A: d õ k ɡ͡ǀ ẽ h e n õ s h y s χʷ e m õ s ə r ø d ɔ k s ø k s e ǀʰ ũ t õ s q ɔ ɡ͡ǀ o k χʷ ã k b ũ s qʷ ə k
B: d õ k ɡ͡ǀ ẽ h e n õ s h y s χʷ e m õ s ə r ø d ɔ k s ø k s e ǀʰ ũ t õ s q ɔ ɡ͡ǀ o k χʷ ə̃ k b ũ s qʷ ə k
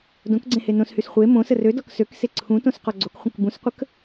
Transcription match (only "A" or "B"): B